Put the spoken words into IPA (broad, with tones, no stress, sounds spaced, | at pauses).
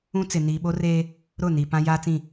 ũ˦ t͡s ɪ˨ n iː˨ ɓ o˦ r eː˦ | ɾ ʊ˦˨ n i˨ p ã˦ j aː˦ t͡s ĩ˦˨